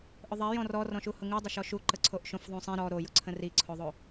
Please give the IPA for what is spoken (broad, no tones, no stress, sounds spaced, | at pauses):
ʔ ʊ ðˤ ɛ j ɔ̃ r ɔ r ɔ̃ ʃ u h ʊ ŋ u dˤ ə ʃ ɔ ʃ u ǃ ə ǀʰ o ʔ ʃ õ f ðˤ ũ sˤ ĩ ɾ ɔ ɾ o j ʊ ǀʰ ə̃ r i ǀʰ o ðˤ o